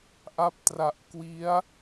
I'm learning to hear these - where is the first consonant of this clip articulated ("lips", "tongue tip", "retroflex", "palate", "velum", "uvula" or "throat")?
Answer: throat